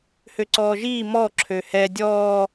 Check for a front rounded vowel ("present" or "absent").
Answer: present